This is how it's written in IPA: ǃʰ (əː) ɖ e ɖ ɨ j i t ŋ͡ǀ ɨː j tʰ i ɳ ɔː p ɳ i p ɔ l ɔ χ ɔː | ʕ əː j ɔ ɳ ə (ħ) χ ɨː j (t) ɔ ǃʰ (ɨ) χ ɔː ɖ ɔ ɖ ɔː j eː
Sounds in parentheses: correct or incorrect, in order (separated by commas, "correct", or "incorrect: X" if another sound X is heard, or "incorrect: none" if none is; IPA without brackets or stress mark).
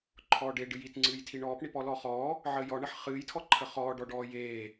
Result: incorrect: ɔː, correct, incorrect: tʰ, incorrect: ə